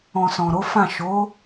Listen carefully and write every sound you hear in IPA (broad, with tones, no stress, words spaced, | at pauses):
ɔ̃˨ sɔ̃˨ɾo˨˦fã˦˨ ʃo˨˦